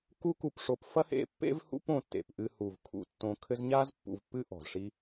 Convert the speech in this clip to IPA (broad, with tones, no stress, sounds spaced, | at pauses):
k u˦ k u˨ p ʂ o˨ p f ɐ˥ h ḛ˦ pː ḛ˥ v h ṵ˦ p õ˨ tː ḛ˩ p ʔ ɨ˨ h u˩ v kʰ ṵ˨ tː õ˨ kʰ ɘ˦ z ɲ a˥ z pː ṵ˨ v pː ɨ˦ ʔ ɔ̤˩ z ʂ i˦